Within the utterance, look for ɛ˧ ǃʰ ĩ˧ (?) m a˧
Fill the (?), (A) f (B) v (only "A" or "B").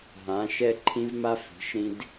B